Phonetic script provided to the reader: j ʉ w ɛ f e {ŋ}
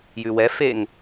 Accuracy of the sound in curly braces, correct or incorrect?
correct